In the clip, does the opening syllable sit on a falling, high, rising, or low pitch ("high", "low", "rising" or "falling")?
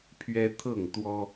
high